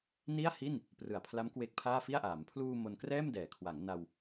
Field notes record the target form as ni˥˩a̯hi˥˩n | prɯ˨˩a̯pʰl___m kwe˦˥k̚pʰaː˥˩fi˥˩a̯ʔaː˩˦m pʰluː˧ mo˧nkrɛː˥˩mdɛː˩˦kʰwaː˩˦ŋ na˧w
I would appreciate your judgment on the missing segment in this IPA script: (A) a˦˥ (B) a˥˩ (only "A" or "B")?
A